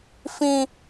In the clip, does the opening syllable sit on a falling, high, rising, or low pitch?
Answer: high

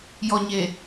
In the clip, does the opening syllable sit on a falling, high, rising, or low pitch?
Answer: low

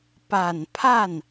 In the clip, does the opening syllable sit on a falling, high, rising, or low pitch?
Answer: low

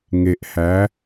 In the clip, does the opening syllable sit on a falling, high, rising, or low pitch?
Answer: low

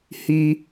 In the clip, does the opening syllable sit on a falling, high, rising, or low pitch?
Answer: high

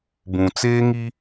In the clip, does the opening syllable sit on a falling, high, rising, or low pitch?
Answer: low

